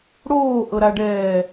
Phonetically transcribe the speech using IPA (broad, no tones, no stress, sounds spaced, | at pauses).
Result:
ɽ oː ʔ ɤ ɾ a ɖ ɛː